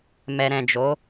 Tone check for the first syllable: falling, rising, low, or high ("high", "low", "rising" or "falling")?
low